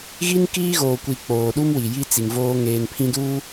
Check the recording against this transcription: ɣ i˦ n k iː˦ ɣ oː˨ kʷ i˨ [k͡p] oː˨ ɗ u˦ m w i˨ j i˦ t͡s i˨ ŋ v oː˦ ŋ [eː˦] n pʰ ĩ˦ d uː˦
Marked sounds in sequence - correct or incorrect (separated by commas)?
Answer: correct, correct